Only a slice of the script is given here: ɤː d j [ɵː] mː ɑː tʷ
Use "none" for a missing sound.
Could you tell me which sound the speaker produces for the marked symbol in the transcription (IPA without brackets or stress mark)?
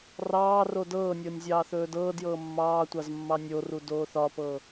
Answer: ɤː